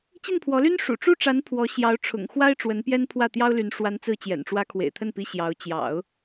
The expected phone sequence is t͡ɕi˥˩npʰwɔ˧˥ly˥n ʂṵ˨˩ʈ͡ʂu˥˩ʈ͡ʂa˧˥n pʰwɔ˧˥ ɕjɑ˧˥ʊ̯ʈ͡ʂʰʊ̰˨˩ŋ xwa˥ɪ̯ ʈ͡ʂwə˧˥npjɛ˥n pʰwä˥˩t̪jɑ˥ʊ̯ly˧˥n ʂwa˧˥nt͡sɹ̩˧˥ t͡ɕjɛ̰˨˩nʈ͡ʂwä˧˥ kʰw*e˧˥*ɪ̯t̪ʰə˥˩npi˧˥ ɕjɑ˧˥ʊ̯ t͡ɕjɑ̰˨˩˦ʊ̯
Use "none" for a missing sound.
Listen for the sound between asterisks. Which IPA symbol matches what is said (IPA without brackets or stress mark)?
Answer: ḛ˨˩